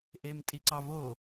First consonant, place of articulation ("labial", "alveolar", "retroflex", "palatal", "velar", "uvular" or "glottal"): glottal